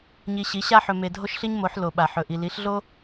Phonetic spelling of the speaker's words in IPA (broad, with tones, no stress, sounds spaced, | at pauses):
ɲ i˧ ɕ i˨˥ ɕ a˥ ħ ɵ˧ m e˧ dʱ o˥ ʃ ɬ i˥ ɲ m o˨˥ ħ l o˧ ɓ a˧ ħ ɵ˧ ʔ i˧ l i˨˥ ɬ ɮ o˥